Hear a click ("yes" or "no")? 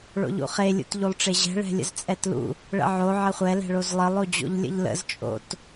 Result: no